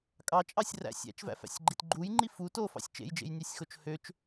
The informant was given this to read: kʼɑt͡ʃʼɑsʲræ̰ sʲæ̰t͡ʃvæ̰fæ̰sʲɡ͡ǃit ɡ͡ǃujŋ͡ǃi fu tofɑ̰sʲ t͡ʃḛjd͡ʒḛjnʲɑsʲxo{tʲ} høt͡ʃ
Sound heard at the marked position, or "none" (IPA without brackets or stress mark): t͡ʃ